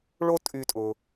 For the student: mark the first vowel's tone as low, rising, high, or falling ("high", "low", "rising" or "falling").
high